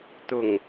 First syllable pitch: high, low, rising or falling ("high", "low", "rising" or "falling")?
low